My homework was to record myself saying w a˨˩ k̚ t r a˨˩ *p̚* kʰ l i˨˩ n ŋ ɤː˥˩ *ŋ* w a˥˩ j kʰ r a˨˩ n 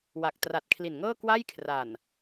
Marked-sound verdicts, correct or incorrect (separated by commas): incorrect, incorrect